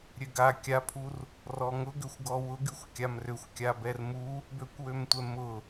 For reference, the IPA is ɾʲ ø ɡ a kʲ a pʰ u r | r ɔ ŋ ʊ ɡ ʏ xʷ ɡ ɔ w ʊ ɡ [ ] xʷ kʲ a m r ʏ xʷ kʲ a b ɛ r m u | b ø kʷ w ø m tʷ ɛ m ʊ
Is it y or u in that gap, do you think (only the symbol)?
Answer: y